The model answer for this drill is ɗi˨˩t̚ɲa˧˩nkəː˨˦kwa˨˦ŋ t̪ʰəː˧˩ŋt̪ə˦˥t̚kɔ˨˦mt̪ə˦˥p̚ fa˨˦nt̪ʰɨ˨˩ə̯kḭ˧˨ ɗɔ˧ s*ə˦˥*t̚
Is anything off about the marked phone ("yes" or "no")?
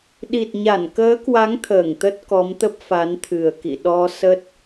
no